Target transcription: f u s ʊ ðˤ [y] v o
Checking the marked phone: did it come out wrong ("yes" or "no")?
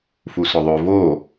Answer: yes